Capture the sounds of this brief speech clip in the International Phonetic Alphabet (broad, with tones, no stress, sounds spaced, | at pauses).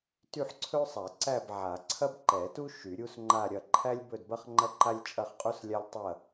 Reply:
t y˥˧ ħ ǀʰ ɵ˥ sˤ a˨˩˦ ǀ æ˥˧ b ʕ a˨˩˦ ǀʰ ɐ˥ b ǃ ɛ˨˩˦ t u˥ ʃ y˨˩˦ ɾʲ u˥ s ŋ͡ǃ a˥˧ ɾʲ ɐ˥˧ ǃʰ æ˥ lʲ b ɵ˥˧ d b ɐ˥ χ ŋ͡ǃ ɐ˥ ǃ a˥ lʲ t͡ʃʼ ɐ˥˧ χ qʼ u˥ s lʲ a˥ lʲ tˤ ɐ˥˧